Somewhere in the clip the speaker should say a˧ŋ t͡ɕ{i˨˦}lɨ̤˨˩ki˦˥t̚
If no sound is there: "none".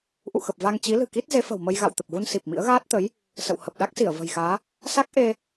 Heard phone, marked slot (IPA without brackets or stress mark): i˨˦